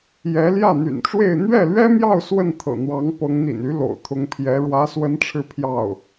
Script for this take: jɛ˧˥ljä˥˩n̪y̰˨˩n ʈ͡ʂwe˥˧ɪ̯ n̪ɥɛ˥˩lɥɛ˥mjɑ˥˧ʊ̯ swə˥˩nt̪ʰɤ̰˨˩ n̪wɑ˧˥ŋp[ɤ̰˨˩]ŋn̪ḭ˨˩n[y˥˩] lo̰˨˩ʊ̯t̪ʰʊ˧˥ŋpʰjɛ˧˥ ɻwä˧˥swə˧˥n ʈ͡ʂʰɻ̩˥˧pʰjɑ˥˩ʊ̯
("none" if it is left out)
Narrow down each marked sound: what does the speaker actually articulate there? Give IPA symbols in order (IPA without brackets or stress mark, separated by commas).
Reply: ɤ˧˥, y˧˥